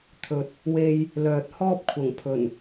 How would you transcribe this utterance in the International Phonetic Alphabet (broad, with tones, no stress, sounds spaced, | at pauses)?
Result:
t̪ʰ ɵ˨ t̚ | w e˧ j | l œː˨ t̚ h ɔː˥ p̚ kʷʰ ɐ˨˩ ŋ pʰ ɵ˨˩ n